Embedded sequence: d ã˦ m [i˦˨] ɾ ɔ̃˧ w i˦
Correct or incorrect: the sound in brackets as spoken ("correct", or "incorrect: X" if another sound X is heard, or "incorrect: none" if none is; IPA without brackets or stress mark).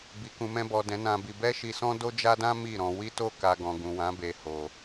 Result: correct